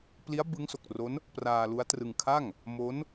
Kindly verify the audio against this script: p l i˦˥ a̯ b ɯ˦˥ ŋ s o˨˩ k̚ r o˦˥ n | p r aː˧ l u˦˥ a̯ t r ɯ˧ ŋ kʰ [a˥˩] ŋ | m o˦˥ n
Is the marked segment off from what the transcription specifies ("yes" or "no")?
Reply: no